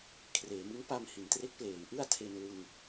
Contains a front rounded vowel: no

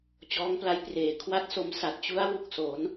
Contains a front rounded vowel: no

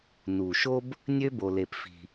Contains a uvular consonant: no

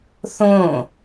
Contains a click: no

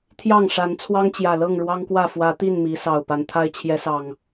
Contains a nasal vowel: no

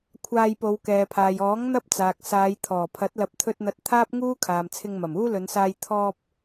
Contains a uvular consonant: no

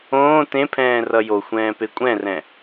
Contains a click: no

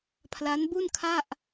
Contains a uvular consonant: no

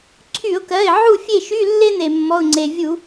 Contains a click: yes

